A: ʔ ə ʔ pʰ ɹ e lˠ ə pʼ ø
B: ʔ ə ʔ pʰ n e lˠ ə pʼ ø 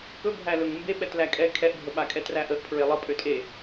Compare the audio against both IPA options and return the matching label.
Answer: A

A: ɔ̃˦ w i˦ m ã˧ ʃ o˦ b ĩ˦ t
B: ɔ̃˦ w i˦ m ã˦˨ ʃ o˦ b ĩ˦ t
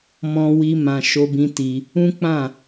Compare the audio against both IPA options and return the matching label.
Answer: A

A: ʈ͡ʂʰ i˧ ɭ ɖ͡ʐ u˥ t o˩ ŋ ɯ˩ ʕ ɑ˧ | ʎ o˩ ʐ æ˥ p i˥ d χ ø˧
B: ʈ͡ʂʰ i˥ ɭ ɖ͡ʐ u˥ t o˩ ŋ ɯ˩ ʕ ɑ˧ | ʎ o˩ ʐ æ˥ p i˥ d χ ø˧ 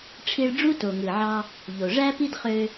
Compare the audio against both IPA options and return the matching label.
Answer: A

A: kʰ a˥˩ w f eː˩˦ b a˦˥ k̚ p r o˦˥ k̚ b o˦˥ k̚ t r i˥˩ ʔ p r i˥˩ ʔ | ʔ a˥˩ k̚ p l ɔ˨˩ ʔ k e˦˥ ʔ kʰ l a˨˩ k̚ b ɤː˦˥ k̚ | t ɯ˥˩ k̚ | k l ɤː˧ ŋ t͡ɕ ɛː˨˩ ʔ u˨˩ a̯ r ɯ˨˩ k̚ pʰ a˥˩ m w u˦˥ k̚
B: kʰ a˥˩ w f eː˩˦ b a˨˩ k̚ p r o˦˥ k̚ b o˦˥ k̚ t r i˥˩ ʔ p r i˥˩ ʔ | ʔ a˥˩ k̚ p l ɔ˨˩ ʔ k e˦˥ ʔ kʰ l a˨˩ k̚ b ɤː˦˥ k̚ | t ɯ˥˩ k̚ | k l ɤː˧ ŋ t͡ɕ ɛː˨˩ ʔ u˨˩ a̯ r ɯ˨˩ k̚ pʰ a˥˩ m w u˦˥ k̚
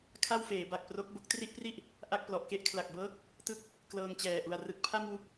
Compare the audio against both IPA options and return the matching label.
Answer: B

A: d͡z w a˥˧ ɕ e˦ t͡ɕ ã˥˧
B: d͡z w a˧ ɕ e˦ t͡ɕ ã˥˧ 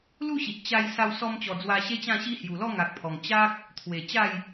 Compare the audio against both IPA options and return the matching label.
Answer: B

